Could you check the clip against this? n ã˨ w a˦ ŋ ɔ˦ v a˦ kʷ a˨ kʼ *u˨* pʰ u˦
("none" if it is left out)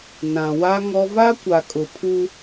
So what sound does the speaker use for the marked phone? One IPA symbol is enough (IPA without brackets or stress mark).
ʊ˨